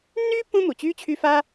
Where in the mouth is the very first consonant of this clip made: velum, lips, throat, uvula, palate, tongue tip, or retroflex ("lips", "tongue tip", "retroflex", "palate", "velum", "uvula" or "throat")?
tongue tip